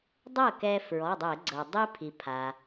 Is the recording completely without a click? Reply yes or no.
no